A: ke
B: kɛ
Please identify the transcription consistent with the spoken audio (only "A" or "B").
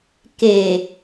A